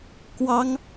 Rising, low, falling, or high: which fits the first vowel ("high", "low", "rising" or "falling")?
high